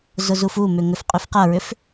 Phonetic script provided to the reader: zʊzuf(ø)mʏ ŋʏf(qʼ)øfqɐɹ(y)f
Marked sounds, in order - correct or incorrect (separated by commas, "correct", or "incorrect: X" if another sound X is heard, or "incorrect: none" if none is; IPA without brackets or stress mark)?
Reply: incorrect: u, correct, incorrect: ʏ